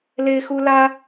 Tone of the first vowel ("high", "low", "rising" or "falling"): high